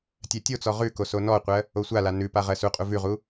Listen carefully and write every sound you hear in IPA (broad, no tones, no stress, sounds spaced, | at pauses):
tʲ ɜ tʲ o t͡s ɔ ʁ ʉ k o s o n ɔ qʷ ɜ | o sʷ a l a n ʉ p a ʁ ɜ s u qʼ u v ʉ ʁ u